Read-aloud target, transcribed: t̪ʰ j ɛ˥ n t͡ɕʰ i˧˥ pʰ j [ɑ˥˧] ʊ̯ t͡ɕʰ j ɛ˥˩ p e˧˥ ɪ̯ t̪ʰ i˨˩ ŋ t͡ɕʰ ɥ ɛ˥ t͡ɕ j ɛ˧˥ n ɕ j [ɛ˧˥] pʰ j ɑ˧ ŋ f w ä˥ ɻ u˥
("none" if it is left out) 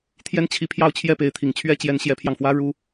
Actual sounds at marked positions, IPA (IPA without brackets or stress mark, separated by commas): ɑ˥˧, ɛ˧˥